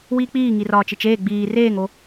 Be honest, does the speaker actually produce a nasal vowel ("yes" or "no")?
no